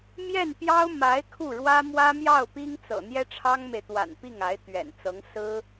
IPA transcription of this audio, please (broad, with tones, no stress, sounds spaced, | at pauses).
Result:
m j ɛ˥˩ n p j ɑ˥ ʊ̯ m a˧˥ ɪ̯ kʰ u˥˩ ɻ w ä˥ m w ä˥ m j ɑ˥˩ ʊ̯ p i˥ ŋ t͡s ɤ̰˨˩ n̪ j ɛ˥ ʈ͡ʂʰ ɑ˥ ŋ m e˨ ɪ̯ t̪ w a̰˨˩ n p i˥˩ ŋ a˧˥ ɪ̯ t̪ ɥ ɛ̰˨˩ n t͡s ɤ˧˥ ŋ s ɹ̩˥